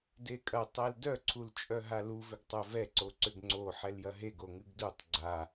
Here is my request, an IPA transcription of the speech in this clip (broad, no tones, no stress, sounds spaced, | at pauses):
d e kʼ ɐ tˤ ɛ l d œ ǀʰ u l t͡ʃʼ œ ɦ a l u v ʏ ɡ tˤ œ v ɛ ǀ o ǀ ʏ ɡ ŋ͡ǀ o ħ ɛ l j ɐ ɦ e ɡ o ŋ ɨ ɡ d u tˤ ɡ͡ǀ a